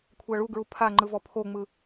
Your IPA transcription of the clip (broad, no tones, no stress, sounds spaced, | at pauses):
kʷʰ a ɭ u ɡ ɹ u pʰ a ŋ͡ǃ ɯ v ɔ pʰ o ŋ͡m ɯ